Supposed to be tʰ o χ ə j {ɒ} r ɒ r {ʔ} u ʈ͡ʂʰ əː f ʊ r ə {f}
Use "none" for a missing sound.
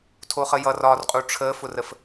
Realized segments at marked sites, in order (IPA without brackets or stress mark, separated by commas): ʌ, qʼ, f